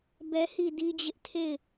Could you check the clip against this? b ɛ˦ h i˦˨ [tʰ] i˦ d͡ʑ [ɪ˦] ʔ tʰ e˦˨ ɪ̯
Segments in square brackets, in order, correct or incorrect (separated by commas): incorrect, correct